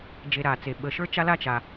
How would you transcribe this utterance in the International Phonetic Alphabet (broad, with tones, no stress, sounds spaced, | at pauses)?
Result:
d͡ʒ e˨ ɾ a˩ t͡s e˩ ɓ ə˨ ʃ ə˞˥ t͡ʃ a˥ l a˥ t͡ʃ a˩